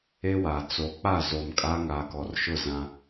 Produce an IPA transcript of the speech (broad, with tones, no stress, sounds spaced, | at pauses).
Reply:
e˦ w a˨ t͡s o˨ k͡p a˦˨ z o˨ m kʼ a˦ ŋ aː˨ k ɔ˨ r ʃ ʊ˦˨ z ã˦